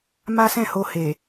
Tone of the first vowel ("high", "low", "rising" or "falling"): high